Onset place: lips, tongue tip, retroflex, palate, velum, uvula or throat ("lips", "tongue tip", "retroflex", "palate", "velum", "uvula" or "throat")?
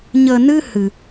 palate